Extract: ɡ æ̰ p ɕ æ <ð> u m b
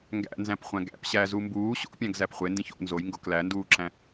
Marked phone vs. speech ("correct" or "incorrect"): incorrect